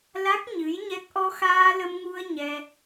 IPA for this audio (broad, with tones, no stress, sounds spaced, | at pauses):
l a˦˥ k̚ ɲ ɨ˧˥ j ɲ ɛ˦˥ k̚ ʔ ɔ˧ x aː˧ l ə˧ m ŋ u˧ ə̯ ɲ ɛ˧